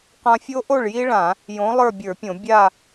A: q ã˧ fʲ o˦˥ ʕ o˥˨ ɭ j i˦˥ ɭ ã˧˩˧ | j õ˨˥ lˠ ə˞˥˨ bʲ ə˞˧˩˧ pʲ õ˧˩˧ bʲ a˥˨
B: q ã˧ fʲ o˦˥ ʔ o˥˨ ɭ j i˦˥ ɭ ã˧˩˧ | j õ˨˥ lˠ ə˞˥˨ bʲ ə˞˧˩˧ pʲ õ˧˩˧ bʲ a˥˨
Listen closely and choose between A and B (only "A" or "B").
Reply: B